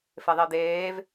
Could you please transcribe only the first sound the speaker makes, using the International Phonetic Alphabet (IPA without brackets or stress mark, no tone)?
f